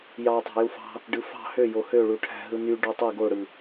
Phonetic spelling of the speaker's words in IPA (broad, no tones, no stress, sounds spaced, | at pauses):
j ɑ tˤ æ̤ j u f ɑ̤ | ɖ ɯ f ɑ̤ h ø j o h ø ɭ u ʈʰ æ̤ ɦ ɯ n y ɖ o tˤ i ɡ o ɽ ɯ